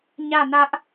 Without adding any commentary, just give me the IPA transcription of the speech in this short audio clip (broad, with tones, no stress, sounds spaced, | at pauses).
ɲ ä˦˨ n ä˦ ʔ